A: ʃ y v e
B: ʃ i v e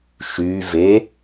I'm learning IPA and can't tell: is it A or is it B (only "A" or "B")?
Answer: A